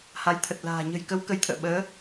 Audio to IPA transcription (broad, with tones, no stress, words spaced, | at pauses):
ha˨˦jt̪ʰə˨˩t̚la̤ː˨˩ ɲə̤˨˩jkə˨˦w kə˨˦jt̪ʰə̰ː˧˨ ɓəː˨˦